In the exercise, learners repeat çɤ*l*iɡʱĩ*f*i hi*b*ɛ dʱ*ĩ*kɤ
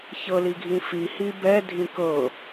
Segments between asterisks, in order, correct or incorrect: correct, correct, correct, correct

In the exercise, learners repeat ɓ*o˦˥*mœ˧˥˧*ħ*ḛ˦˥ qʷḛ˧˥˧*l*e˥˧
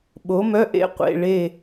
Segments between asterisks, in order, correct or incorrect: incorrect, incorrect, incorrect

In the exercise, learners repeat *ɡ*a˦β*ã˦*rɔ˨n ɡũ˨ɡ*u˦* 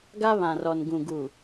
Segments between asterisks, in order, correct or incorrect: correct, incorrect, incorrect

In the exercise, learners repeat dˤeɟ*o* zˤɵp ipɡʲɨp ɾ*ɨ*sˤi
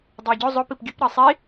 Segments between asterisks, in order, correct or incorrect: incorrect, correct

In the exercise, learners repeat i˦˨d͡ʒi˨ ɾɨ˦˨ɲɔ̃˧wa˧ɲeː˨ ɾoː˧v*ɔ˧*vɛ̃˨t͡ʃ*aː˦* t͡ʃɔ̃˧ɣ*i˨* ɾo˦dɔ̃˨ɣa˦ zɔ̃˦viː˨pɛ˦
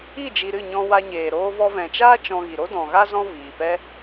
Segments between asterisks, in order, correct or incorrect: correct, correct, correct

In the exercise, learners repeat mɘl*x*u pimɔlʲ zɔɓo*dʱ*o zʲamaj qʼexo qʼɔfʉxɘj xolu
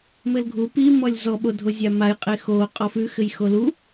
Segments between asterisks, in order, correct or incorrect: incorrect, correct

